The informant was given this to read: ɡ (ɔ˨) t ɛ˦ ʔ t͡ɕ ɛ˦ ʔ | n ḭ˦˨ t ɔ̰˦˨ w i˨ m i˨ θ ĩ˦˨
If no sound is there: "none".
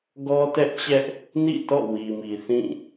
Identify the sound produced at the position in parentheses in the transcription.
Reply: ɔ˦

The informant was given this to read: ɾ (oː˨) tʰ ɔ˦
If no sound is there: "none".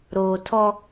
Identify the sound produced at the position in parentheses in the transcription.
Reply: oː˨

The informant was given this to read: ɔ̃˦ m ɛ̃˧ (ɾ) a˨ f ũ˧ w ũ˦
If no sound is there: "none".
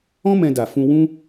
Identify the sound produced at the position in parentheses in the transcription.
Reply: d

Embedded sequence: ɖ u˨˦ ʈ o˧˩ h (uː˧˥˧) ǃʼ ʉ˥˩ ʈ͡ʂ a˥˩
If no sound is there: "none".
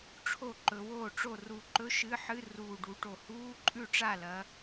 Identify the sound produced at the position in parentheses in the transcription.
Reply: uː˧˥˧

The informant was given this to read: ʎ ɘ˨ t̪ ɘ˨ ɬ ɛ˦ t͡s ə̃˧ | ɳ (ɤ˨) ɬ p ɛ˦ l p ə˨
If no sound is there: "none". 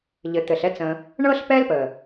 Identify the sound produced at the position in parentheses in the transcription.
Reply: ɤ˦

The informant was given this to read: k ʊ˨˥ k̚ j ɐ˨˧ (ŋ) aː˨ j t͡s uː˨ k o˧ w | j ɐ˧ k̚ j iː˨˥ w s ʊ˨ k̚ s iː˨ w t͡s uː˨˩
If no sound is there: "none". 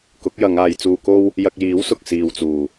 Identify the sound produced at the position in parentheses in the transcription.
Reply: ŋ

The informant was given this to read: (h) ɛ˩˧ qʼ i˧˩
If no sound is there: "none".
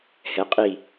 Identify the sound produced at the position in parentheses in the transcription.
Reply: h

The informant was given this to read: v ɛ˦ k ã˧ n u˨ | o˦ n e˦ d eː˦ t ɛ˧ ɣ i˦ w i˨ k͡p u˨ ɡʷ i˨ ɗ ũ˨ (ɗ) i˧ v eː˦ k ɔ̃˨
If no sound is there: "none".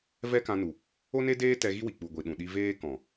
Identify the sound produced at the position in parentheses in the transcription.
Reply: ɗ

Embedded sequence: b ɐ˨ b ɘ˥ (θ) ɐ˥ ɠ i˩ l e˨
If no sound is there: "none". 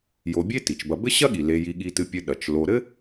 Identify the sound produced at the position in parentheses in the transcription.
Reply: ɕ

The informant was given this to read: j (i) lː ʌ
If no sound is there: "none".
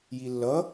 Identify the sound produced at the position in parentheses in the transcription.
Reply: i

